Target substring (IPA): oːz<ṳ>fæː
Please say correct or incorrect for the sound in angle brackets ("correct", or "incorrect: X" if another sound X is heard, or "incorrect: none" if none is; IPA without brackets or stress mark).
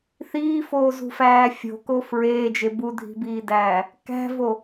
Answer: correct